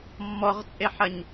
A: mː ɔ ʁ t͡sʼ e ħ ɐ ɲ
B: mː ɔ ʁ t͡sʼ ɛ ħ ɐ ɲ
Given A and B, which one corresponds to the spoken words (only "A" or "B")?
A